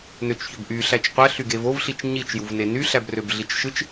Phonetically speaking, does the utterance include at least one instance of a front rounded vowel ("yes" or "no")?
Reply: yes